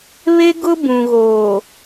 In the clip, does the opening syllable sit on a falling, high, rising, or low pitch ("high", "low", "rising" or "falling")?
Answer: high